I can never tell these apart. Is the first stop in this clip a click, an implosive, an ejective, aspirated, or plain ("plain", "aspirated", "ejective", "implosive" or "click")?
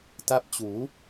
plain